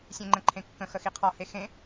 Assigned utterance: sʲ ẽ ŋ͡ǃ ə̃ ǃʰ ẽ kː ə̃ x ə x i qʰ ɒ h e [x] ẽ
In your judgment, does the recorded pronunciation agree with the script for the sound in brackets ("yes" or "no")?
yes